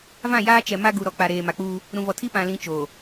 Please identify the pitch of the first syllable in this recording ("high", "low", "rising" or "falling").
falling